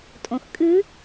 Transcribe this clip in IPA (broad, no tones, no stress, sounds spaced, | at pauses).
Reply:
tʼ õ x kʼ ɨ